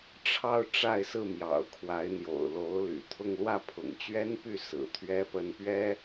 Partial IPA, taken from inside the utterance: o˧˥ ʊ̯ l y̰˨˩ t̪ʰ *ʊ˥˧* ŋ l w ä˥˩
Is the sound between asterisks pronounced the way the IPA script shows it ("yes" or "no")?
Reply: yes